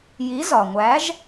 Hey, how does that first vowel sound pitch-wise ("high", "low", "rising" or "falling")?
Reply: rising